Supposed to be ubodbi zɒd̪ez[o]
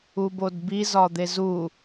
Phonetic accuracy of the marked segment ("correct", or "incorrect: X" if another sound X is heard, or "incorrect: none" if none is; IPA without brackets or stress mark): incorrect: u